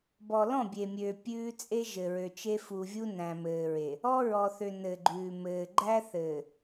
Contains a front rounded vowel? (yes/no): yes